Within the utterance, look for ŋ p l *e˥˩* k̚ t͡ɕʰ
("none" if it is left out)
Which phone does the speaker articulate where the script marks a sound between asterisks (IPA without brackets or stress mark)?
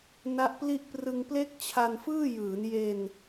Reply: e˥˩